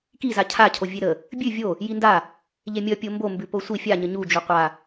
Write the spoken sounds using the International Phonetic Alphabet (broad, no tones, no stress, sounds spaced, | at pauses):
k i z a cʰ a cʰ o vʲ e ɾ ə | bʲ ʉ vʲ o | j i n d a | ʎ e mʲ ʌ pʲ o m b o m b ʉ p o sʷ i fʲ a ɲ ə ɲ u d͡ʒ u qʷ a